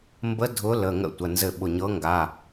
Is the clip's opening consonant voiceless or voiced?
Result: voiced